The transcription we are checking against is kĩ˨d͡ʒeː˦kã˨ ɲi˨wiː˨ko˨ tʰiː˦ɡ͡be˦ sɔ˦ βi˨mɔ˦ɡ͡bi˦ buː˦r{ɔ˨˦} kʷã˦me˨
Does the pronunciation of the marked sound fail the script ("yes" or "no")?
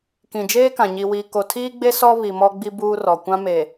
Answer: yes